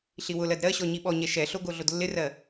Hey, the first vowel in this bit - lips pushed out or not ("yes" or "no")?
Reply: no